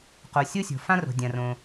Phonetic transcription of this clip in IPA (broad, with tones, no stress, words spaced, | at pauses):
qo˩ sʲo˥sʲo̤˩ fã˥ro̤˩ dʲã˩rõ˩